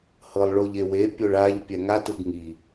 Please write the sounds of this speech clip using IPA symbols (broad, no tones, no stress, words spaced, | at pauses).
hɤlˠɭoʎewe pʲoɭaʎ pʲɛŋat ɯɡŋi